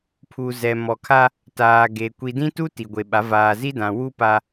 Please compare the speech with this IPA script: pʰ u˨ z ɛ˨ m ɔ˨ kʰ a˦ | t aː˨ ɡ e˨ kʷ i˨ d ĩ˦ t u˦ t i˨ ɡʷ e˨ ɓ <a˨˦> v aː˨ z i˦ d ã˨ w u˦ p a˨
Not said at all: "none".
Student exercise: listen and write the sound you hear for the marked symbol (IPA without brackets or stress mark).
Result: a˨˦